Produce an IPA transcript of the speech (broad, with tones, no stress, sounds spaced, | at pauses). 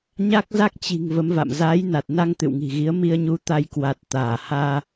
ɲ a˦˥ k̚ z a˦˥ k̚ t͡ɕ i̤˨˩ ŋ v ə˨˦ m v a̰˧˨ m z aː˨˦ j n a˨˩ t̚ n a˧ ŋ t̪ ɨ̰˧˨ w ŋ i̤˨˩ ɣ i˨˦ ə̯ m i˧ ə̯ ɲ u˨˦ t̪ a˧ j k w a˨˩ t̚ t̪ aː˧˩ h aː˧